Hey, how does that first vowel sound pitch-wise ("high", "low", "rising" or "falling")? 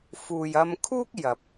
low